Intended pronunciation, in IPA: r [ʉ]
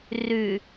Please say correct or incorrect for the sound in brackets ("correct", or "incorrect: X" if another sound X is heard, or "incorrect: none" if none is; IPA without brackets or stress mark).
correct